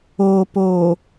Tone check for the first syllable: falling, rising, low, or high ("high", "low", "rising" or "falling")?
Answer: low